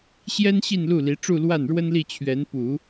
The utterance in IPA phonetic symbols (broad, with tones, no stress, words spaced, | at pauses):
ɕjɛ˥nɕi˥˧nlu˥˩li˧˥ ʈ͡ʂu˥˧lwa˥˩nɻwə˥n li˥˩t͡ɕʰɥɛ˧˥n pu˨˩˦